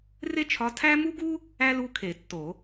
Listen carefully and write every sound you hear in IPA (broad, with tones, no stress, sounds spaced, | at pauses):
r e˥ t͡ʃʰ ɒ˧˥ tʰ æ˥ m u˥ ɡ u˥ | æ˥ l u˧˥ kʰ e˨˩˦ tː o˨˩˦